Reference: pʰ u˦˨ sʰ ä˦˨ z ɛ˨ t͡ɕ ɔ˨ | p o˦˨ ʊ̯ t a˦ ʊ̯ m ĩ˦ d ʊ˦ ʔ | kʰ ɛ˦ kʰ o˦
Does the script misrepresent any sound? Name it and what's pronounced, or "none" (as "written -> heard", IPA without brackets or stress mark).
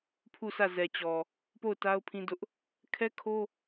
m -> pʰ